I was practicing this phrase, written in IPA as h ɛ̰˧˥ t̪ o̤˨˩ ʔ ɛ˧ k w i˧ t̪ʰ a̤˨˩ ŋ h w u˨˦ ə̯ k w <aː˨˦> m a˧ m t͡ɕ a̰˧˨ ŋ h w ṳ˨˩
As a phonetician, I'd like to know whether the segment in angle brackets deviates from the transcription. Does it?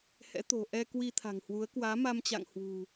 no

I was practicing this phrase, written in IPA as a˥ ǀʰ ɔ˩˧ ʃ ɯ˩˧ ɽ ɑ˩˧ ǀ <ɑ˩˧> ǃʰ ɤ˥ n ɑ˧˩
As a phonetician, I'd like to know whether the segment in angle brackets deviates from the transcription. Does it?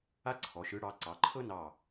no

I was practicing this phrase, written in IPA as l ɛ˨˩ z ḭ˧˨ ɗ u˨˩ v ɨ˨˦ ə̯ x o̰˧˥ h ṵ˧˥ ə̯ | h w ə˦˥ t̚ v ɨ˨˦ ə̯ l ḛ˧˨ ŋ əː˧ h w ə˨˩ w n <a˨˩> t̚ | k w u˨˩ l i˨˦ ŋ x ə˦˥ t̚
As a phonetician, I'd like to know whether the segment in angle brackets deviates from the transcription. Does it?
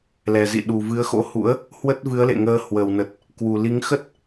yes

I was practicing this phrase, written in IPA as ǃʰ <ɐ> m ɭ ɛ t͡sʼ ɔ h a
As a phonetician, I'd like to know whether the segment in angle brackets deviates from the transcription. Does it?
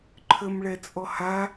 yes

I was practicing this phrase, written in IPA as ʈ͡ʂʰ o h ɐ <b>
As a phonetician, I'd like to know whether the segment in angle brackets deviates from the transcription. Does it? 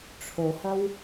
yes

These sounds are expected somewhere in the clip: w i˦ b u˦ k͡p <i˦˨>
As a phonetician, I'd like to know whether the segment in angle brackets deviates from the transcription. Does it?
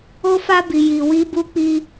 yes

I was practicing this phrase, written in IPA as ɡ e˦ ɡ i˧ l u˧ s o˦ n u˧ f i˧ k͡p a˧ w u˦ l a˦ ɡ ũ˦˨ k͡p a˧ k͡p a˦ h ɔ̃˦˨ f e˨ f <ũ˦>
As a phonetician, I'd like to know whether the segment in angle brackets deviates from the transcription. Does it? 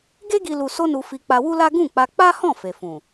yes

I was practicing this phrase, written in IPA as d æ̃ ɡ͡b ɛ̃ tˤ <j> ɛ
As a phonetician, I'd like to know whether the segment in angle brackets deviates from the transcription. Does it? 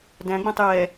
no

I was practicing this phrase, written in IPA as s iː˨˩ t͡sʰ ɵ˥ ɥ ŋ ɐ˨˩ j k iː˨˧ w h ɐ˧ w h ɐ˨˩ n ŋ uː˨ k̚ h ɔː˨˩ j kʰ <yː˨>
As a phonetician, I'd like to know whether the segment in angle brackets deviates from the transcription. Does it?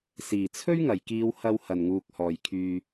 no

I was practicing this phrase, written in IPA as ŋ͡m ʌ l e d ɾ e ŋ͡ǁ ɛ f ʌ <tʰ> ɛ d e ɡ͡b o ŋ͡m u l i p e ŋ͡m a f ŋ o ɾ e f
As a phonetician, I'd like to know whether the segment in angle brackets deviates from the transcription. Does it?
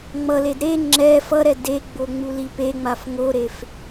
yes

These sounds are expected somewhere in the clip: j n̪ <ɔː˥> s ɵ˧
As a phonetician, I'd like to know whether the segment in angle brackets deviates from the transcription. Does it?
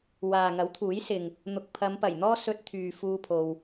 no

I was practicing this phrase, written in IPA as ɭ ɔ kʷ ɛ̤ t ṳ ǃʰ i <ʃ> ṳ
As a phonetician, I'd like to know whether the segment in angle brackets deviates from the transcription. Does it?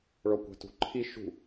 no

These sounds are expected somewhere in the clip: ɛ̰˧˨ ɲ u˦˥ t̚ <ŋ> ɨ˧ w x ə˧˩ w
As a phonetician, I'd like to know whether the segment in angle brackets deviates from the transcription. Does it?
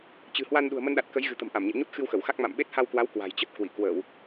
yes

